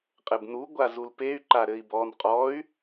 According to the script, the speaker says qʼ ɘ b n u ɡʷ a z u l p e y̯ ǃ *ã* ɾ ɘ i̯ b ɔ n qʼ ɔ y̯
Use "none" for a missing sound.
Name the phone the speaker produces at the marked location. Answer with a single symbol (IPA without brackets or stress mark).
a